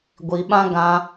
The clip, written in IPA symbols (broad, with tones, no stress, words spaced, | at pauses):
ɡʷi˧ɓã˦ ɡã˧